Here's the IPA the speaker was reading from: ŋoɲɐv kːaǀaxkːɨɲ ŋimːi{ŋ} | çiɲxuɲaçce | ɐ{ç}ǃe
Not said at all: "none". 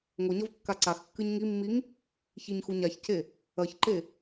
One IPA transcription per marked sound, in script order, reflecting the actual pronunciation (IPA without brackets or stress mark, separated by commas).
ŋ, ç